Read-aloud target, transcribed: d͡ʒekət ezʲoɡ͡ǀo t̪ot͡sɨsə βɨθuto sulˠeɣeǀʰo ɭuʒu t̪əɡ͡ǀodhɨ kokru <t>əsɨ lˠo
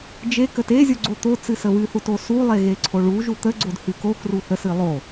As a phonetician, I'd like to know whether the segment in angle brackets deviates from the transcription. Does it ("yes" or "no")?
yes